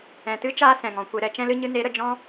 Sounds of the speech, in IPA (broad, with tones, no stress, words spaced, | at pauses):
ɛ̃˨tɨ˦ t͡ʃaː˦ sɛ̃˨ŋɔ̃˨kʷe˧ ɾɛ˧t͡ʃɛ̃˦l ɨ˦ ɲɨ˦ ne˨˦ɾə˨ d͡ʒɔ̃˦